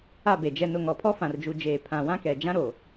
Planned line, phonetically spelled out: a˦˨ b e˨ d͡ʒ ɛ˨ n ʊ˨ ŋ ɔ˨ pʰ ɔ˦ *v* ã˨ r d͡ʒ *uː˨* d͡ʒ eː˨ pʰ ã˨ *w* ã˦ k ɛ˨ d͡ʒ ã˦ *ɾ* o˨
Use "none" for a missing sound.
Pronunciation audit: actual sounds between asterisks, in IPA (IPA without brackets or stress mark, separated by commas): f, u˨, w, ɾ